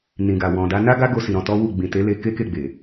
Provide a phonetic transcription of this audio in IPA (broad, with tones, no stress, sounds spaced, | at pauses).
n ĩ˨ ɡ a˨ w ɔ̃˨ d a˨˦ n a˦ ɡ a˦ ɡ o˧ s i˨ ɾ ɔ̃˧ t ɔ˦ w u˦˨ ɡ͡b ĩ˨ t e˨˦ l e˧ k e˦ k e˦˨ ɡ͡b e˨